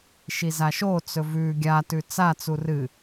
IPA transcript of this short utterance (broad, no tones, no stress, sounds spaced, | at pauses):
ʃ i z a ʃ o t͡s ɵ v ʉ ɡʲ a t ʉ t͡s a t͡s u r ɨ